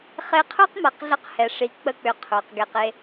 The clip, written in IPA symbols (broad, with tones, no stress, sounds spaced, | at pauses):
χ e˧ qʰ ə˞˦ q m a˧ q ɮ ə˦ q h ɛ˨ ʂ i˧ k͡p ə˦ k͡p ʏ˧ qʰ ə˞˨ q ɡ ɛ˧ q e˦